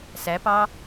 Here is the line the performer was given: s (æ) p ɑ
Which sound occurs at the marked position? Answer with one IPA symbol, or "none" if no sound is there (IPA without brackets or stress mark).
æ